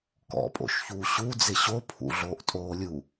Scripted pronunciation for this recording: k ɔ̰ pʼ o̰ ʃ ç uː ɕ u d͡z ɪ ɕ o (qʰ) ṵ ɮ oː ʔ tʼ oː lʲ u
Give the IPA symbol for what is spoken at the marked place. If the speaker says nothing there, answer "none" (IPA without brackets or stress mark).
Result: pʰ